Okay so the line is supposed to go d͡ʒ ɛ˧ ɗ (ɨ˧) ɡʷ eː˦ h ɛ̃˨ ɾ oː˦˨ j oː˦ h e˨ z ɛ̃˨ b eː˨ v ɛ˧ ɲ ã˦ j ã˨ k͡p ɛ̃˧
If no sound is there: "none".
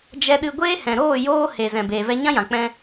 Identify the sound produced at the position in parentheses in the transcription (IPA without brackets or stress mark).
ɨ˧